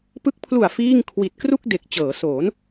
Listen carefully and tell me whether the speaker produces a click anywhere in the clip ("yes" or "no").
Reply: no